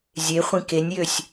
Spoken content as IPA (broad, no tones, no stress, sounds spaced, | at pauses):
zʲ e χʷ ĩ k e nʲ j ø sʲ